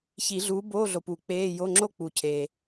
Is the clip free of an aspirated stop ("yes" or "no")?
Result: no